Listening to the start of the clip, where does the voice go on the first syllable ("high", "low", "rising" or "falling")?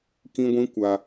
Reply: high